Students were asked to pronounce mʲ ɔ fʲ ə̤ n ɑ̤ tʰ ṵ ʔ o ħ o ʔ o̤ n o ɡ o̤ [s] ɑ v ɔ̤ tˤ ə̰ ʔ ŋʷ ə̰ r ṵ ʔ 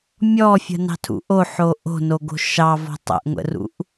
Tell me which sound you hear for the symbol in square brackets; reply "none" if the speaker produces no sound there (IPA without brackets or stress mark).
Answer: ʃ